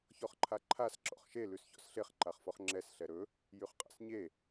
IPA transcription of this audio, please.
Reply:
ç ɔ χ ǃʰ a ǃʰ a s ǁ ɔ̰ χ ʃ e l ʉ s ç ɔ̰ s ɬ e χ ǃ a χ f ɔ χ ŋ͡ǁ ɛ s ɬ ɛ ɾ ɵ | j y χ qʼ a̰ s ɲ e

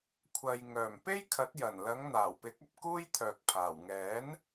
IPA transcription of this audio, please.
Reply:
kʷʰ ɐ˧ j ŋ œː˨˩ m p e˥ j kʰ ɐ˨˥ t̚ j ɐ˨˩ n l ɐ˨˧ ŋ n̪ aː˨˩ w p ɪ˨˥ k̚ ɐ˧ p̚ k uː˥ j t̪ʰ œː˨ k̚ pʰ aː˨˩ w ŋ ɛː˨˥ n

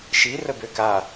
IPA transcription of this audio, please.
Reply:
ʃ i r ə b ø k a

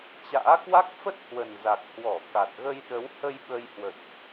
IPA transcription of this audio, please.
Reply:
t͡ɕ a̰ː˧˥ k w a˦˥ k̚ f ə˦˥ t̚ h w ə˨˩ n z a˨˩ k̚ h w ɔ˧˩ k a˨˩ t̚ ɣ ə˧ j ɗ ə˨˦ w h ə˧ j ɓ ə˧ j h w ə̰˧˨ j ʔ

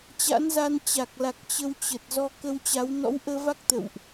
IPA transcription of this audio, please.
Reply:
t͡ɕ a̰˧˥ n z a˧ n t͡ɕ a˨˩ k̚ l a˨˩ k̚ t͡ɕ ə˧ w t͡ɕ ə˨˩ t̚ z ɔ˧ k ə˧ w t͡ɕ a˨˦ w n ɔ̰˧˥ w ʔ əː˧ v a˦˥ k̚ t̪ ə̰˧˨ w ʔ

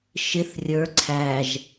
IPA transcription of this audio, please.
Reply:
ʃ ɪ θ rʲ ə˞ ǀʰ æ ʒ

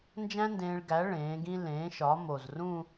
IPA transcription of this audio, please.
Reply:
n d͡ʒ æ̃˥ n d ẽː˧ ɭ ɡ æ˩˥ ɭ ẽː˩˥ ɡ ĩ˥ l ẽː˩˥ ʃ ɒ˩˥ m o˨˩ z r ũ˥˧

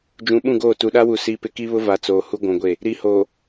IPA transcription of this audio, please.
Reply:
d͡ʒ ũ˨ ɓ ũ˦˨ ɡ oː˦˨ t u˨ ɗ a˦ w u˨ s i˦ p ɪ˦ k i˦ β ʊ˦ v a˨ t͡s oː˨ h u˦ ɡʷ ũ˨ ɡʷ e˦˨ | ɾ i˨ h oː˨

